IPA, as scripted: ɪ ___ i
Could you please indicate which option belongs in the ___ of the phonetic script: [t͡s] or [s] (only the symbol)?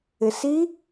s